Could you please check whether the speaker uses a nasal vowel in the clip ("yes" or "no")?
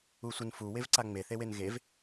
no